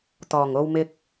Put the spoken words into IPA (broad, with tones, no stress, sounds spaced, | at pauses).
t̪ ɔː˨˩ ŋ o˧ w m ɪ˧ k̚